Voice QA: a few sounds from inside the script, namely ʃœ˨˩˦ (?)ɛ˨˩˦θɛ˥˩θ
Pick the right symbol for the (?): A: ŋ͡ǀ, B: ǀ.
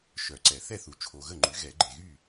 B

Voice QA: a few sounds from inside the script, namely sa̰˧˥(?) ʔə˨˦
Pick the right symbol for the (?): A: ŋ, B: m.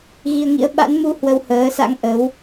A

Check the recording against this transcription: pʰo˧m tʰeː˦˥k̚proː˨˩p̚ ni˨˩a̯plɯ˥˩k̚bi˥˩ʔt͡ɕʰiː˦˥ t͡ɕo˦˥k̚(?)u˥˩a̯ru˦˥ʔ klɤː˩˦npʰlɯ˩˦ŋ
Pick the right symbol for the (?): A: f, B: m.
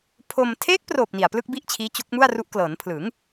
B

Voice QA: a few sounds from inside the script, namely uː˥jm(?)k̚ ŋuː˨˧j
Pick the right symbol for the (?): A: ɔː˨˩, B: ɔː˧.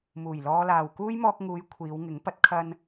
B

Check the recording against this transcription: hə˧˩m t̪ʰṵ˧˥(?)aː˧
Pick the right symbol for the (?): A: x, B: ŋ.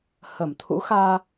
A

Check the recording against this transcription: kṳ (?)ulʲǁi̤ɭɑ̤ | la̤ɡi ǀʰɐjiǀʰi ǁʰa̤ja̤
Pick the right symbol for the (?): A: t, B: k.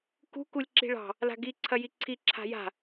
B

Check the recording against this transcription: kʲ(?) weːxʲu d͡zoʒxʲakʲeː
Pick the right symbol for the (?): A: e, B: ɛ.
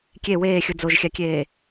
A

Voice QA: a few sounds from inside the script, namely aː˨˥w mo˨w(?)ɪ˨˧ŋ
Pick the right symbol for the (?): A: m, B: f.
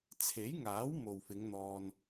B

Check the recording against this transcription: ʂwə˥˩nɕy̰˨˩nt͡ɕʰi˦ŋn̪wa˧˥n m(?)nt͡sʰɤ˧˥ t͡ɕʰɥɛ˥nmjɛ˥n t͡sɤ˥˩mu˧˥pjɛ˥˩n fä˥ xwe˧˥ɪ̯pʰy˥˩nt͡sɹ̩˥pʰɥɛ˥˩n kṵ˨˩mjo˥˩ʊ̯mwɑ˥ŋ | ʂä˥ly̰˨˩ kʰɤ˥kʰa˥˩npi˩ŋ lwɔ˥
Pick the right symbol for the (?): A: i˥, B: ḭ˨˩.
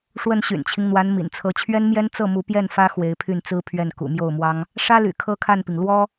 B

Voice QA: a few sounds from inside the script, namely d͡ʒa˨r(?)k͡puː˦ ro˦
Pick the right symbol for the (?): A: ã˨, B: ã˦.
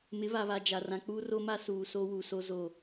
A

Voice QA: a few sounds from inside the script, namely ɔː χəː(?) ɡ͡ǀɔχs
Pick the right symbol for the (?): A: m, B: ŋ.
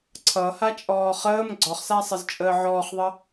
A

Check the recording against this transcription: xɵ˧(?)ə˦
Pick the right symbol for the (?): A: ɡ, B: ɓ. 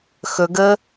A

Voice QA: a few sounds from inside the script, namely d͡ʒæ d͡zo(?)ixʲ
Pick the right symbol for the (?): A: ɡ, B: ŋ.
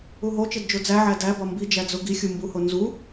A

